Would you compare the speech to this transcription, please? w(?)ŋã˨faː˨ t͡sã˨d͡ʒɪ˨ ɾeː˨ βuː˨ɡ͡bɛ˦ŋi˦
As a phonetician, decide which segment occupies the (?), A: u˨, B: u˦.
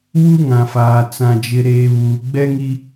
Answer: B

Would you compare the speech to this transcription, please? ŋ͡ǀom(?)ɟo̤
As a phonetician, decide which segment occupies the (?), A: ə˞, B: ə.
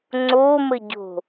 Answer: B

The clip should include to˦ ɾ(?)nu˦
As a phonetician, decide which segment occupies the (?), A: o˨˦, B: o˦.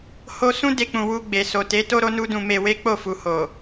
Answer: B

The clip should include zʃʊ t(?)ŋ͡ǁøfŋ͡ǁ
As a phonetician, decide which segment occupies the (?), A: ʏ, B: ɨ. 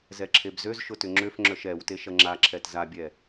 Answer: A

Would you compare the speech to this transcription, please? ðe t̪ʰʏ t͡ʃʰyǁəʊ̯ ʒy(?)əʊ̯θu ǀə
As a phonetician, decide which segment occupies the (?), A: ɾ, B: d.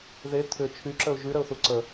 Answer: A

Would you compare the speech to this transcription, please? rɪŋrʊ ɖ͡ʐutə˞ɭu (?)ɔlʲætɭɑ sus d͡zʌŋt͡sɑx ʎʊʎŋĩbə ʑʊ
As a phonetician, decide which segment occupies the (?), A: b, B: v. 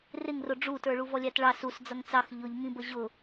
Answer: B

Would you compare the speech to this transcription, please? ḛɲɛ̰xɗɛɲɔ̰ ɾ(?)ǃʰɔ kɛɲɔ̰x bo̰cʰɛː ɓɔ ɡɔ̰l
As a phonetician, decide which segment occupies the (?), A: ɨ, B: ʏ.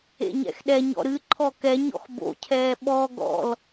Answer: A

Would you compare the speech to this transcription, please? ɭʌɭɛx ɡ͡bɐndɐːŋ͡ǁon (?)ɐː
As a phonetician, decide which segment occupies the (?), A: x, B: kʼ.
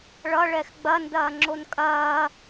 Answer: B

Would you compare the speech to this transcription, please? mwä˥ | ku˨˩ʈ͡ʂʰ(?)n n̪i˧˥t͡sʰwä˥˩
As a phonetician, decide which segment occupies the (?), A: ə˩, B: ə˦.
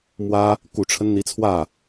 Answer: B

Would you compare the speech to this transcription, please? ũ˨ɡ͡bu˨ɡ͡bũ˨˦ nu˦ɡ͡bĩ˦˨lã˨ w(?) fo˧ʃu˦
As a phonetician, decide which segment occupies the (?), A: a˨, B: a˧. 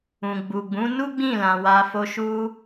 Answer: B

